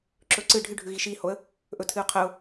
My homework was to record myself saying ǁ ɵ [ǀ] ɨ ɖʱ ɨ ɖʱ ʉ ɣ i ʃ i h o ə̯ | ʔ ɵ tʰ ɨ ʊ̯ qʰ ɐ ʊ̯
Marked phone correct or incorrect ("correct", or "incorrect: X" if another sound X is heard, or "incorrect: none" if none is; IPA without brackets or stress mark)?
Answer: correct